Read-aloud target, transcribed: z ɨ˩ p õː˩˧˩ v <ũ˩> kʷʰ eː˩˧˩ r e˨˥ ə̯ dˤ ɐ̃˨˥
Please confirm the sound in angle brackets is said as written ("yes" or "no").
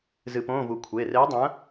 no